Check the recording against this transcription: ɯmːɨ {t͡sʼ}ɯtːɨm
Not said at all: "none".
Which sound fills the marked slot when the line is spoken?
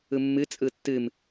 t͡sʼ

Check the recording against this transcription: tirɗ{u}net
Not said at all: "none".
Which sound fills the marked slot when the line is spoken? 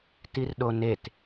o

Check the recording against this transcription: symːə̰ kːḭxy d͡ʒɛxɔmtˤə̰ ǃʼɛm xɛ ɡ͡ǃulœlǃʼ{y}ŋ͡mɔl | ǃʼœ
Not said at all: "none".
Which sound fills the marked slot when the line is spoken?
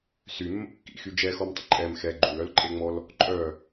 e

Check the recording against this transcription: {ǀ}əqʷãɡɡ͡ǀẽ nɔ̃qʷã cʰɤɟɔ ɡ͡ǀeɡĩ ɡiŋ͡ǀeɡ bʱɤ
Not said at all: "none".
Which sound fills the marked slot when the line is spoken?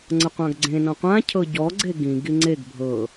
ŋ͡ǀ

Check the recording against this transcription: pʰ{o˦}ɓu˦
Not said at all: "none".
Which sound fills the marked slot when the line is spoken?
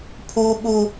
u˦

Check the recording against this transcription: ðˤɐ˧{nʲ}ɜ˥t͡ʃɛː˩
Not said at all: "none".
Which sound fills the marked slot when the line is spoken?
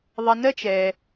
n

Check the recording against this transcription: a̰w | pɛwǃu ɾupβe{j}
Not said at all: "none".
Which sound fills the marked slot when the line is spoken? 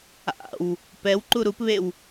w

